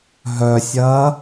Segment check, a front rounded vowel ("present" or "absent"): present